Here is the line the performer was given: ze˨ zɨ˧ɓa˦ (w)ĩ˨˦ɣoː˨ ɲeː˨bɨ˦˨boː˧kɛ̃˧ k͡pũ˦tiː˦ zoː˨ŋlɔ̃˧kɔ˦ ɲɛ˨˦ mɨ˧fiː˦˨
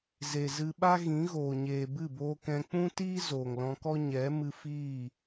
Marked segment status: incorrect: ɣ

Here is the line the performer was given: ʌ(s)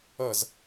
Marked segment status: incorrect: z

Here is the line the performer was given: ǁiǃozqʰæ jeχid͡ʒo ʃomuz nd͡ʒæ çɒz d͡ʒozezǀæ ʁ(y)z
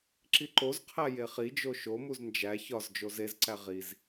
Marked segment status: incorrect: i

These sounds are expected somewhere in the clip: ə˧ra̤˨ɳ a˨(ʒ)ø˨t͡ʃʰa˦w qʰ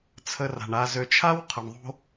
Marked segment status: incorrect: z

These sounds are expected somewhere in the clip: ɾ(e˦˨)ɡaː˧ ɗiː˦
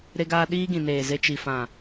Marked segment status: incorrect: e˧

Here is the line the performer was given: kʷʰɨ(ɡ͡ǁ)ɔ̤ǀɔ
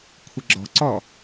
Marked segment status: correct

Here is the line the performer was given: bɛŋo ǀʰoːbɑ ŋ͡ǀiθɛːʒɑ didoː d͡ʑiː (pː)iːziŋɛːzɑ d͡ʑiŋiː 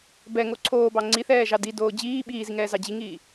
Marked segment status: incorrect: ɓ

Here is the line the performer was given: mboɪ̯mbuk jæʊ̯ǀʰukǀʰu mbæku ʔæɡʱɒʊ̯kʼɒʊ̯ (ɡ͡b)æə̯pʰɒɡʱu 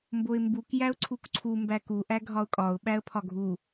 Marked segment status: incorrect: ɓ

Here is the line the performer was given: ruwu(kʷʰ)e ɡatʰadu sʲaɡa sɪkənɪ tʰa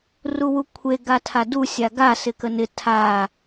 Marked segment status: correct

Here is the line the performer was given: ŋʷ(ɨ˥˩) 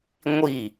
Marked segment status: incorrect: i˥˩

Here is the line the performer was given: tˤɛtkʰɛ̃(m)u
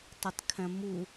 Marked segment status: correct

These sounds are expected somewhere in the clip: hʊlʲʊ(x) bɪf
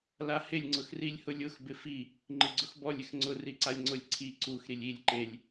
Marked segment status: correct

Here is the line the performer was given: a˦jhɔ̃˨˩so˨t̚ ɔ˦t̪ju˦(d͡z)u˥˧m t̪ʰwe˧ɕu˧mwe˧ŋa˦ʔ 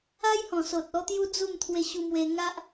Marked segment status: correct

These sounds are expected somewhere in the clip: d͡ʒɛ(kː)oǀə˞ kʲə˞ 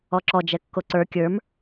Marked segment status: correct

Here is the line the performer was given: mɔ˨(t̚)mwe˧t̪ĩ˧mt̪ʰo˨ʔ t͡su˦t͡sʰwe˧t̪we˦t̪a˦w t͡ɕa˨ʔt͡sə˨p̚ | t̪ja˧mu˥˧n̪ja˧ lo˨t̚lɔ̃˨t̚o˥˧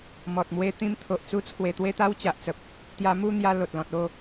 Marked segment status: correct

